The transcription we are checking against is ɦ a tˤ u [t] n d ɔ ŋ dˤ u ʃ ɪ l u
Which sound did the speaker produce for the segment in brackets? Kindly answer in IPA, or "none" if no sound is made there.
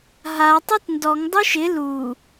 t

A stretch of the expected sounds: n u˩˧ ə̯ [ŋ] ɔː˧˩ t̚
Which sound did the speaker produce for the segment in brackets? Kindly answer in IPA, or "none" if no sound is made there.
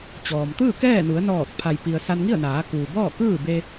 n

